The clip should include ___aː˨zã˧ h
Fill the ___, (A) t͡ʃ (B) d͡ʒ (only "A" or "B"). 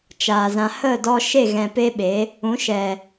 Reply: A